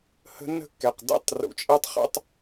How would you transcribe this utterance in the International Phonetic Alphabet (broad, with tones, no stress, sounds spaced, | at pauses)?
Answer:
h ə̤˦ nː ə̤˦ kː ɛ˨ q d ɛ̰˦ tˤ r ṵ˨ t͡ʃʼ ɛ˦ tˤ χ ɛ̰˦ tˤ